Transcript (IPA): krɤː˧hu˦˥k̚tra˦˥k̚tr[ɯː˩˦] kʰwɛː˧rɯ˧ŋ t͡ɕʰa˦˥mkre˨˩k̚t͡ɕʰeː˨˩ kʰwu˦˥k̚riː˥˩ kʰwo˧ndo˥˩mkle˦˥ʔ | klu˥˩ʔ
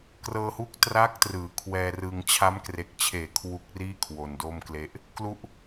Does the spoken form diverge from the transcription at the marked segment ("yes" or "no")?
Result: no